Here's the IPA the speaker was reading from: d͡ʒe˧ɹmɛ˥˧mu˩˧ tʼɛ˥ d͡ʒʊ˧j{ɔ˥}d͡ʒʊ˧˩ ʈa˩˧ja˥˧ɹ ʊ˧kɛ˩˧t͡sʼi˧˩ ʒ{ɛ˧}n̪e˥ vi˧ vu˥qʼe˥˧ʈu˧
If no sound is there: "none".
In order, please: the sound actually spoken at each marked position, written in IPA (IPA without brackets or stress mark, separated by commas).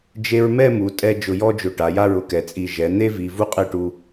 ɔ˥, ɛ˩˧